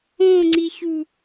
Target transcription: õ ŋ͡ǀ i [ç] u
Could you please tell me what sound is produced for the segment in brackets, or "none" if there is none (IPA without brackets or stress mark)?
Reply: ç